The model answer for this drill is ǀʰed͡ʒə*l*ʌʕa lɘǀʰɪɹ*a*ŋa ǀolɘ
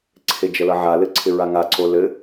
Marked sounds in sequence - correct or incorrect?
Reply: correct, correct

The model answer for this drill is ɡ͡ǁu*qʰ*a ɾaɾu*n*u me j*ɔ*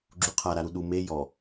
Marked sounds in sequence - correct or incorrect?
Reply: correct, incorrect, correct

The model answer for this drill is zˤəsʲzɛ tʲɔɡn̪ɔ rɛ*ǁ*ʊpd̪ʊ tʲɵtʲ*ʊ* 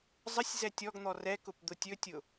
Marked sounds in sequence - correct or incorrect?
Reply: incorrect, correct

